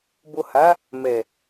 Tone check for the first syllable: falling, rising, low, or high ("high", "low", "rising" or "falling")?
low